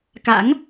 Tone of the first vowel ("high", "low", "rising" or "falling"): rising